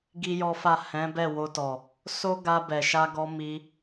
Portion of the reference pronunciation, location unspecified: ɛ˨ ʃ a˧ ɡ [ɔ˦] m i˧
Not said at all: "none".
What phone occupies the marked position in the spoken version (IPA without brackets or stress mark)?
ɔ˧